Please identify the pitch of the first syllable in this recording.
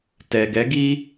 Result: low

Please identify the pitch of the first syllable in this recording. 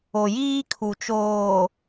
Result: low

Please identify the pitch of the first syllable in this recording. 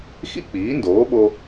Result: high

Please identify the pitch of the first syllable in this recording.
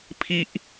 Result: high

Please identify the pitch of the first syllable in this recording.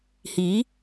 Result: rising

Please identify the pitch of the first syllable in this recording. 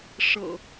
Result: low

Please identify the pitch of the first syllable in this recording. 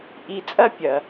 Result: low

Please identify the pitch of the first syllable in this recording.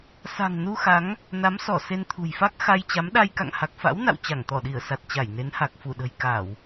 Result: low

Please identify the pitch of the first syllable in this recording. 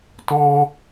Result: high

